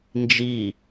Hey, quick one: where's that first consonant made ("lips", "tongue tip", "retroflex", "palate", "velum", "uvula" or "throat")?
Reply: tongue tip